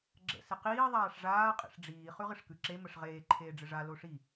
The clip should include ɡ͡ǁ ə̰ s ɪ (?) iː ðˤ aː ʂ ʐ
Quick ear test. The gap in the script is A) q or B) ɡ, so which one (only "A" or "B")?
A